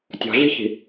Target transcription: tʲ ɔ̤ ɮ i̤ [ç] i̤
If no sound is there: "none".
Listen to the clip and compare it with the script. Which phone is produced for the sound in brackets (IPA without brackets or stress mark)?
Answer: ç